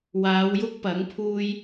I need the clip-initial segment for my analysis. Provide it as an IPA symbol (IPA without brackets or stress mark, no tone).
w